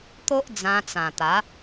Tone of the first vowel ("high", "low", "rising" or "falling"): high